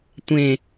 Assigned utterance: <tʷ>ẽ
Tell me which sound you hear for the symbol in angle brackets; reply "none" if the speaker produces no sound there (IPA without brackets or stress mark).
tʷ